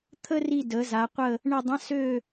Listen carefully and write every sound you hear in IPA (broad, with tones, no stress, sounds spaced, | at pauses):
t̪ʰ ə˥ r i˦˨ d ə˩˧ z a˩˧ qʷ ə˦˨ | ɳ ə˦˨ dˤ ə̃˧˥˧ s ø˦˨